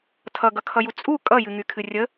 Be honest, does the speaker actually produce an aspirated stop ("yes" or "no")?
yes